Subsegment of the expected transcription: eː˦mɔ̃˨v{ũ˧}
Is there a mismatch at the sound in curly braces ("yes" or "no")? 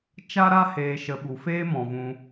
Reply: no